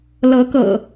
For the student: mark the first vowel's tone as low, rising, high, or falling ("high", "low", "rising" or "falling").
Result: rising